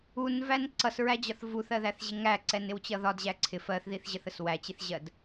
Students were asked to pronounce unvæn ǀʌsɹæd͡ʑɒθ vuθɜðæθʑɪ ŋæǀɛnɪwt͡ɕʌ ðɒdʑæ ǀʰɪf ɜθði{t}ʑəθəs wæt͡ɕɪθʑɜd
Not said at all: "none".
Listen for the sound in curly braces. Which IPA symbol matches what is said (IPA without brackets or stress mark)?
θ